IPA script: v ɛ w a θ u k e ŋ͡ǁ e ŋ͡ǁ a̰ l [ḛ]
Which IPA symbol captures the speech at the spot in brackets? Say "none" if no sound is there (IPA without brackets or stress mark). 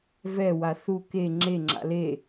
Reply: e